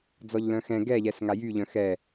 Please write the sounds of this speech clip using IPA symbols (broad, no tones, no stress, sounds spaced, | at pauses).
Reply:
d͡z ɔ ʎ l œ̃ x ɛ̃ ɡ ɛ ʎ ɛ s ŋ a j y ʎ œ̃ x ɛ